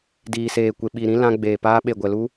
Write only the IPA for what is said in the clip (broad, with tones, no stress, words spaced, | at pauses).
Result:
diː˨seː˨kʷe˨ɓi˨ ɾĩ˦ lã˧ɡ͡beː˨ paː˧ɓe˨ɡʷɛ˨lu˧